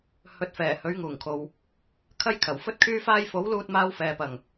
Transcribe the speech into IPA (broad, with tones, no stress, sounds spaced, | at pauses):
h ɵ˨˥ t̚ f ɛː˨˩ h ɵ˨˥ ɥ ŋ uː˨˩ ŋ kʰ o˨ w | kʰ ɐ˥ j kʰ ɐ˨˩ w f ɵ˥ t̚ kʰ yː˥ f aː˥ j f o˨˥ w l uː˧ t̚ m aː˧ w f ɛː˨ p ɐ˨˩ ŋ